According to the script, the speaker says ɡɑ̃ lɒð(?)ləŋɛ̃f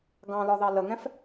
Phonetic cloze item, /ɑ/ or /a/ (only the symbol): ɑ